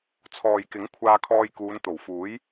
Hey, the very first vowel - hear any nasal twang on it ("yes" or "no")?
no